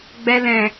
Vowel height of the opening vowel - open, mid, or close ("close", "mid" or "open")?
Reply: mid